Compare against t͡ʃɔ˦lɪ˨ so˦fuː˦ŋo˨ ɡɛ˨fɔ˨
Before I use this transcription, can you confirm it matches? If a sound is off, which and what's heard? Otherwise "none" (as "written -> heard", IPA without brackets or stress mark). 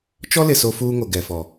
none